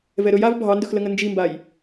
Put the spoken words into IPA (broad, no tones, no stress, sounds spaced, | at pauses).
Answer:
v ɛ ɾ ɵ j a v bʱ ɑ n d ɵ x l ə ŋ ə n d͡ʒ i m b a j